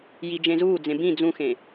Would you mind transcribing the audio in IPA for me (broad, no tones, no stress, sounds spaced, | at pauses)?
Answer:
j i d͡ʒ ẽ z uː d͡z ẽ b ĩ d͡z ũ x ẽ